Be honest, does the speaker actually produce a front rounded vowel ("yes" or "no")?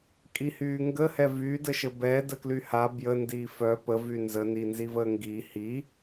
yes